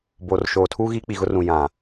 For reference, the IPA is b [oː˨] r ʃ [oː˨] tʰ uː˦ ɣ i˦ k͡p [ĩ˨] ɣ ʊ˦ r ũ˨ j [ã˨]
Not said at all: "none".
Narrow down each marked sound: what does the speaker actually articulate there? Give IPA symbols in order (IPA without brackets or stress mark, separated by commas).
oː˨, oː˨, i˨, ã˨